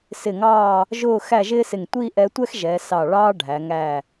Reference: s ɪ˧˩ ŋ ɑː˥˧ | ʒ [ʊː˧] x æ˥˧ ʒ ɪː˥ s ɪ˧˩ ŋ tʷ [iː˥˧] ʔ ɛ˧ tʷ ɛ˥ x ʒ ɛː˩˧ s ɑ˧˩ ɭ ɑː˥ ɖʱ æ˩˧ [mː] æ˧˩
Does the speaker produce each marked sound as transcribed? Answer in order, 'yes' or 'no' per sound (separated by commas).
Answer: no, yes, no